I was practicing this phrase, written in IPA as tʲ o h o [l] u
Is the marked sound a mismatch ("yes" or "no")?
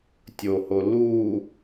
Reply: no